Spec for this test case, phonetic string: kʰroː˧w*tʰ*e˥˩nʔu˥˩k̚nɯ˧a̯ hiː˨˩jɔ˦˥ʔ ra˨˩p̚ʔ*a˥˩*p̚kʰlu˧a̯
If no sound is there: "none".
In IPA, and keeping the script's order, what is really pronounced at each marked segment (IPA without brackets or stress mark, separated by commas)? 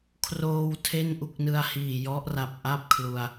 tʰ, a˥˩